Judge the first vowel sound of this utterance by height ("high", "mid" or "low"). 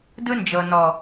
high